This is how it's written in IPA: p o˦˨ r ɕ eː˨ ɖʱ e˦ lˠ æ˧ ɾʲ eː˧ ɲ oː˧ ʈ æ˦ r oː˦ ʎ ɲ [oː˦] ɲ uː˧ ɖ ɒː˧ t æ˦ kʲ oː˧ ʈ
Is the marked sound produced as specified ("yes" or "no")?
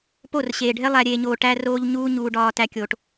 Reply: no